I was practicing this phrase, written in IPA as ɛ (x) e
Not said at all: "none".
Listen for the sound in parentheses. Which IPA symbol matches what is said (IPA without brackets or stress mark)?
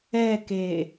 k